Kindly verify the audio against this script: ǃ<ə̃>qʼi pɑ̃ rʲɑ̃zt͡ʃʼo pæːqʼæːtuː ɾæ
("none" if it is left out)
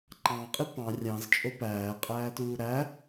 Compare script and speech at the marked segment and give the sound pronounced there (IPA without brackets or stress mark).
ɑ̃